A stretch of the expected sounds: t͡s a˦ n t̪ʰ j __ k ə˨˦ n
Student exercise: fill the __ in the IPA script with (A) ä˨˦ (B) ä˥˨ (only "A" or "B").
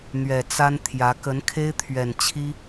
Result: A